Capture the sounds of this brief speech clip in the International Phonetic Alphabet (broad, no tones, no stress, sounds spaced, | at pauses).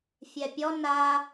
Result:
fʲ ɛ pʲ ɔ n a